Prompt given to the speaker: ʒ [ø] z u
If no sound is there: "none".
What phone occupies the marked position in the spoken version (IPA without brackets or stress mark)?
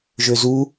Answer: ø